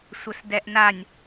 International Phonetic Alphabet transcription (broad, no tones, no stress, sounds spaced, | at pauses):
sʷ ə s d ɛ ʔ n a nʲ